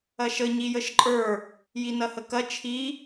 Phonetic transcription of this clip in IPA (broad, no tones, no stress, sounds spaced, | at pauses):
ɐ ʃ ə ɲ i j ə ʃ ǃʼ ə˞ | j i n ɐ h ə k ɐ t͡ʃʰ i